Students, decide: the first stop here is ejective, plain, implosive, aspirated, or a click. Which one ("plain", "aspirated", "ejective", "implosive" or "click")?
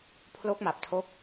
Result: aspirated